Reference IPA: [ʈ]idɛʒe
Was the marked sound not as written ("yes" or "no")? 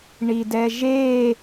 yes